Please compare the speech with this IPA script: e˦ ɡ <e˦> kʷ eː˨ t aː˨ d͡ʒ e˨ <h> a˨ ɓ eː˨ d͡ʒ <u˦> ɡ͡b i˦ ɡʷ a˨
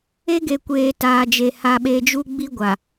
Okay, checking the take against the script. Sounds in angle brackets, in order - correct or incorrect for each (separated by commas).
incorrect, correct, correct